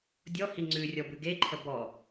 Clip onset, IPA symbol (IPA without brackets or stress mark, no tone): dʲ